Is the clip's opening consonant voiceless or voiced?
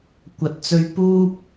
voiceless